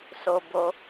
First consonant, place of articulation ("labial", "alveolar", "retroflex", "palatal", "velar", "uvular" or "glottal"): alveolar